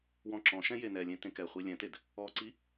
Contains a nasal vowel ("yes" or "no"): yes